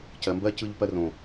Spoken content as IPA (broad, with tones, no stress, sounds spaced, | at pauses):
c ɜ˨ m b ɜ˦ c ɯ˧ ʎ p ɜ˧ r õ˨